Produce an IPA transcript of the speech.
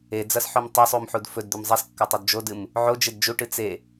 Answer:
e d͡z ɐ s ħ o m tˤ ɐ sˤ u m ħ u d f ɵ d d̪ ʉ m zˤ e s kː ɐ tˤ u d d͡ʒ o d ɨ m | ʕ o d͡ʒ e d d͡ʒ u ʈ ɨ t͡s e

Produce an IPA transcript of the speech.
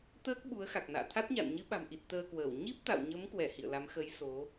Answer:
t̪ əː˦˥ k̚ ɓ u˨˦ ə̯ x a˨˩ k̚ n a̰ː˧˨ t̪ʰ a˦˥ t̚ ɲ a̰˧˨ n ɲ ɨ˨˦ ɓ a̤˨˩ m ʔ i˨˩ t̚ t̪ əː˧ k w əː˧˩ w ɲ i˦˥ p̚ t̪ a̰˧˨ w ɲ ə˨˦ m k w ɛ˧˩ h ḭ˧˨ ə̯ l a˨˦ m x ə˨˦ j s o˨˦

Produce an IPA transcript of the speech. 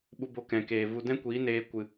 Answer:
ɓ u˧ b o˧ k ɛ̃˨ k eː˨ v u˧ d ɛ̃˦ kʷ iː˨˦ n eː˧ kʷ ɨ˨

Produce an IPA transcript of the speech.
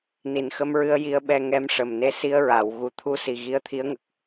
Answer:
n i˨˩ n x ə˧ m ɹ ɨ˧ ə̯ j i˧ ə̯ ɓ ɛ˧ ŋ ɛ˧˥ m ʂ ə˨˩ m n e˧˥ s i˧ ə̯ ɹ a˨˩˨ w ɣ u˨˩ t̪ʰ u˧˥ s i˨˩ ɣ i˧˥ ə̯ t̪ʰ i˧˥ ə̯ ŋ ə˨˩ k̚

